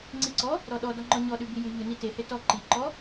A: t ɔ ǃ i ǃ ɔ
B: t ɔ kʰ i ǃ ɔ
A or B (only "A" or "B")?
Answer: A